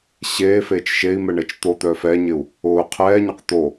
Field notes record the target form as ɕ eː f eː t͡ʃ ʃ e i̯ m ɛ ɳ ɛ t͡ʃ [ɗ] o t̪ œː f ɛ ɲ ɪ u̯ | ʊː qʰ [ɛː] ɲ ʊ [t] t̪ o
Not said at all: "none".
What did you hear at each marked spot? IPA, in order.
t̪, ɛː, q

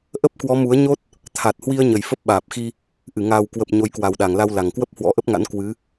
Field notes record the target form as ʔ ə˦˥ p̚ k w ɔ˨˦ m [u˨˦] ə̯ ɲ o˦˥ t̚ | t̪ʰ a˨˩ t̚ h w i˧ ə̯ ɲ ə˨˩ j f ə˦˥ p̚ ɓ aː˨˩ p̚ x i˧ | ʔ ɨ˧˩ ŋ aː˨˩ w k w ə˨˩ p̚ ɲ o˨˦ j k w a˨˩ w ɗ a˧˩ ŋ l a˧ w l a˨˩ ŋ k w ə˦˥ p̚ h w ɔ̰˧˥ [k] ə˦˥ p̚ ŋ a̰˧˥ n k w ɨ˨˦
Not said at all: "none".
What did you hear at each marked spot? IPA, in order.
u˨˦, ʔ

